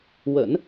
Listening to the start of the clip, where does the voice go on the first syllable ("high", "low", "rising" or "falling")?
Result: low